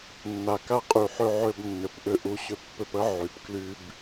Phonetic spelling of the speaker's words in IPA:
nː a˨ k a˧ qʼ y˨ ħ ø˧ ʕ ø˧ b nː ʏ˨ p ʔ ʏ˧ ʔ u˧ ɕ ʏ˦ pː ʏ˧ p ə˦ ʕ y˨ p k l y˧ b

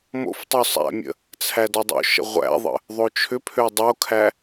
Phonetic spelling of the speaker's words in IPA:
m o̰ f tˤ ø sˤ æ̰ mʲ ə̰ | t͡sʰ æ d ɔ dˤ o̰ ʃ ə̰ ʁʷ æ̰ ðˤ ə̰ | ðˤ o t͡ʃʰ ʏ pʰ ø dˤ o kʰ æ

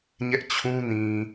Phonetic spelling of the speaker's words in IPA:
ɲ ɛ˦ ʔ t͡ɕʰ ũ˦ n ĩ˨

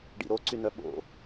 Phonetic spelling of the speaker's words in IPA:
ɖ ḭ ɾ o ǀ y n œ ɓ o̰

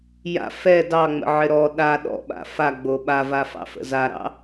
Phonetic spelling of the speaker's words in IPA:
j a̰ f ɛ d ɑ ŋ͡m ə̰ ʕ ɪ ɾ ɔ ɗ a ɗ ɔ̰ ɓ a̰ f a ɡ͡b o ɓ a v a f ɑ̰ f ə̰ z a ɾ ɑ̰

